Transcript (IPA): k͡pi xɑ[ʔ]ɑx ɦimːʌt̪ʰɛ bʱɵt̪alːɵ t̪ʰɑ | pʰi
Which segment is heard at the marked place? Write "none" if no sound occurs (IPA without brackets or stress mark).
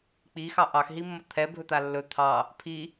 ʔ